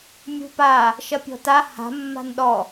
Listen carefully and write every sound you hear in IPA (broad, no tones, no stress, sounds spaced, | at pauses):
mʲ ṳ p a | ʃ ɐ pʲ ɔ̤ t a h a̤ mː a̤ n ɗ ɔ